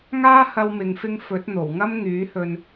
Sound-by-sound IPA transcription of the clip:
ŋ aː˥ h ɐ˧ w m ɪ˨ ŋ f ɪ˧ ŋ f ɵ˨˥ t̚ n̪ o˨˩ w ŋ ɐ˥ m ŋ yː˨˥ h ɵ˧ n

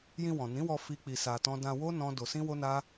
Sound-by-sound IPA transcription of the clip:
j ĩ˧ w ɔ̃˨ n ĩ˨˦ w ɔ˧ f i˦ k͡p i˧ s a˧ t ɔ̃˦ d ã˧ w o˦ n ɔ̃˦ d o˧ s ĩ˦ w o˦ n a˦

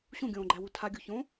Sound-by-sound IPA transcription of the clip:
ɕ ũ ɡʲ õː ɡ͡ǃ æ w u tʰ a ɡʲ u ç õ

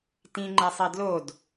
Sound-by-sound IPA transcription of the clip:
t ĩ ŋ͡ǃ ɛ sˤ i d l o d

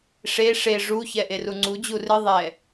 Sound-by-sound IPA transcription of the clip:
ʂ e ʂ e ʐ u ç ɛ ʔ e r u ŋ͡ǀ u d͡ʑ u r ɨ ðˤ ɛ

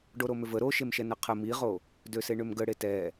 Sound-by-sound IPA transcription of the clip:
ɖ o ɾ o m ʏ v ə ɾ o ʃ e m ʃ ɛ n ə qʰ ə m i ʁ o | d ø s e ɳ ʏ m ɡ ə ɽ e t ɛ

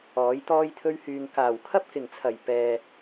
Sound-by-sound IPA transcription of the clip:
ɔː˨˥ j t̪ ɔː˥ j t̪ʰ ɵ˥ ɥ h yː˧ ŋ k aː˨˩ w kʰ ɐ˥ p̚ k ɪ˨˩ ŋ t͡sʰ ɐ˨˩ j p ɛː˧

